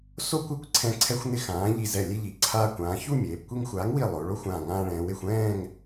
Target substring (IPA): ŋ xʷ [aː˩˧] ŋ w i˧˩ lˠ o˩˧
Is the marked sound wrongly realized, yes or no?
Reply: yes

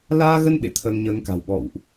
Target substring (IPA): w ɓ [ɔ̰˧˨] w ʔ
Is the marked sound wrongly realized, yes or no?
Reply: no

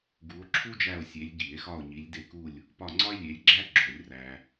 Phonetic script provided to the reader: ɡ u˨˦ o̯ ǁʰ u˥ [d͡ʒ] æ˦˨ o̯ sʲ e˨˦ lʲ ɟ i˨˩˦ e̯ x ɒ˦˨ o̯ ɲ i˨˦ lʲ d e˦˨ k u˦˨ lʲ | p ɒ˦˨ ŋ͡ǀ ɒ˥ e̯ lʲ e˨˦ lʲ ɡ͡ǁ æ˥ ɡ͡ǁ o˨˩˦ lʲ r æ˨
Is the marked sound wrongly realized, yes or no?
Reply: no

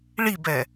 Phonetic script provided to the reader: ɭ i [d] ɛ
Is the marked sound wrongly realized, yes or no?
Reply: yes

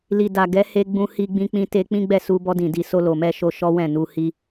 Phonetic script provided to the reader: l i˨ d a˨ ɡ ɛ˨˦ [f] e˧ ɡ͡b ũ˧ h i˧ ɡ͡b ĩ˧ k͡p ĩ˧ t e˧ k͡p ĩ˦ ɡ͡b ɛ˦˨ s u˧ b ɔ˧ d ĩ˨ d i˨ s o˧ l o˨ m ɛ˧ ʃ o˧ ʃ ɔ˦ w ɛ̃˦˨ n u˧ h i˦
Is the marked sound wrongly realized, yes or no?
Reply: yes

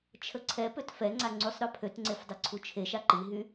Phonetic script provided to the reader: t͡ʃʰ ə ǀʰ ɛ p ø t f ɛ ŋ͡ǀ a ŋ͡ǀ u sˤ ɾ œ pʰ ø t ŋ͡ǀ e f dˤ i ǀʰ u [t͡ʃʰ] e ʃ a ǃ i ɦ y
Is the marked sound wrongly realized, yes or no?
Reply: no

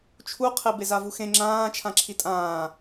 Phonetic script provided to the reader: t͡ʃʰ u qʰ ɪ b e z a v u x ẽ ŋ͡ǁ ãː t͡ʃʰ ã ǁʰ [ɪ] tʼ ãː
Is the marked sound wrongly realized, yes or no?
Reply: yes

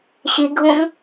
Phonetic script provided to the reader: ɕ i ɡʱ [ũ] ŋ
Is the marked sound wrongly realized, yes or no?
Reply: no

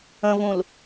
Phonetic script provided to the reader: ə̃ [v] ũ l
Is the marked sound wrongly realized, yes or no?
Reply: no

